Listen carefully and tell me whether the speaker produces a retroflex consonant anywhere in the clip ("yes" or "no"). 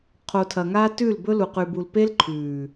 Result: no